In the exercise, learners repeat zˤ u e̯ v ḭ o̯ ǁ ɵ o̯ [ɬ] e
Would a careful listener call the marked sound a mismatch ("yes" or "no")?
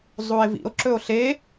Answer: no